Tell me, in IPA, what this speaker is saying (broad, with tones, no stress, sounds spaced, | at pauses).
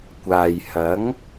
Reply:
kʷ aː˨ j h ɐ˨˥ ŋ